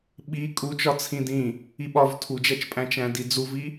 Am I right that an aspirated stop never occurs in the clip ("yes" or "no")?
no